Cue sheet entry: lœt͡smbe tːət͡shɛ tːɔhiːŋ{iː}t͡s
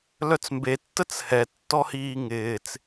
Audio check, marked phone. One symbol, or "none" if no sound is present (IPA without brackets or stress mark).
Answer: ɪː